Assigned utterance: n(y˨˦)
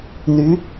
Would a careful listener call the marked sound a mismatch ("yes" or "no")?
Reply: no